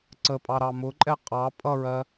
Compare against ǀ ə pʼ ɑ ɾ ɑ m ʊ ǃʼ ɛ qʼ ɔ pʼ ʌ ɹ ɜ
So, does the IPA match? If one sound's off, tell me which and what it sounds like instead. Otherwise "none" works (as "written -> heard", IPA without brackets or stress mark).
ɔ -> ɑ